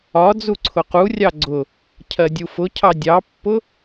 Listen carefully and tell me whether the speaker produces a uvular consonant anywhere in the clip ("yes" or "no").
yes